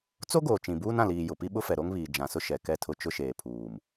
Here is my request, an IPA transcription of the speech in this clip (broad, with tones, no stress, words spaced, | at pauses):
t͡so˦ɡoː˨ t͡ʃĩ˨buː˦nã˨liː˨ jʊ˨pi˦ɓʊ˦fɛ˨ ɾo˦ŋβiː˨ d͡ʒã˨sʊ˦ ʃɛ˨kɛ˦˨tʰʊ˦ t͡ʃʊ˦ʃeː˨pʰuː˨m